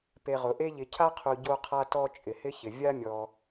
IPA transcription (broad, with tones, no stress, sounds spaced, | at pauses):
p e˨ ʁ ʊ˩ ʔ e˦ ʎ ɪ˨ cʰ a˥ qʰ u˨ ɟ o˦ qʰ a˦ t ɔ˦ t͡ʃʼ ɪ˩ h ɪ˥ ç ɪ˩ vʲ a˥ mʲ ɔ˨